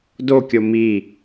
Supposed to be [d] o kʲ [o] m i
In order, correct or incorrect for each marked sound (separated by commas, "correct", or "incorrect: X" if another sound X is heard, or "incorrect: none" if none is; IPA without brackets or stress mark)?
correct, correct